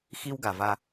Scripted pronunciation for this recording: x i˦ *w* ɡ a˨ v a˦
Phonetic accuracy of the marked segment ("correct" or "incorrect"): correct